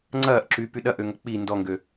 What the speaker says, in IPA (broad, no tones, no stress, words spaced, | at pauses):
ŋ͡ǀɐːʔǁypy ɗɐʔøŋɐ k͡pi ndɔŋɡø